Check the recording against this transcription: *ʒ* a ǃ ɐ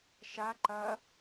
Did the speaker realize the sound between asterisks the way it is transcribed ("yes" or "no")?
no